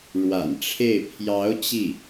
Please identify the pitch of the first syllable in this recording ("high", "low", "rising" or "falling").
low